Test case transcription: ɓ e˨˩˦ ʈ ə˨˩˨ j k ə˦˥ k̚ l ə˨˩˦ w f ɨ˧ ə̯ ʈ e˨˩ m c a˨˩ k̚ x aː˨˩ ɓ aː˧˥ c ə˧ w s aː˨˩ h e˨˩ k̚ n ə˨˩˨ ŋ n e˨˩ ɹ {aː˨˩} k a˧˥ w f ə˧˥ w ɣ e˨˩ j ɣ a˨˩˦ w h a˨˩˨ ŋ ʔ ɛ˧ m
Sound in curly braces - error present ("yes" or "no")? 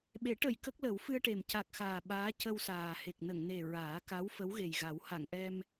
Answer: yes